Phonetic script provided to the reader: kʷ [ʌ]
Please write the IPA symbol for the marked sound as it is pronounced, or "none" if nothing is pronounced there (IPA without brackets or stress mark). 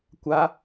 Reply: a